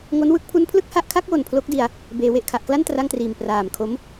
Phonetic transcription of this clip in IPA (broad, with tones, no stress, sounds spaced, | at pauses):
ŋ o˦˥ n w ɯ˦˥ k̚ pʰ u˦˥ n pʰ l ɯ˥˩ k̚ h a˦˥ ʔ kʰ a˦˥ k̚ w o˨˩ n pʰ l o˦˥ k̚ d i˧ a̯ | b eː˩˦ w e˨˩ ʔ kʰ a˨˩ ʔ k l a˥˩ n t r a˥˩ ŋ t r iː˨˩ m p r aː˨˩ m kʰ o˦˥ m